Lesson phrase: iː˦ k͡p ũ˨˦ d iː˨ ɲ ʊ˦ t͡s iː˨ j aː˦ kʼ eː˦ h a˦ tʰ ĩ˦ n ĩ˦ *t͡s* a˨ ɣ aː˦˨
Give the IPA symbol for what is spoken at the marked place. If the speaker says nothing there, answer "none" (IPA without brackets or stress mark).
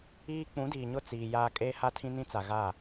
t͡s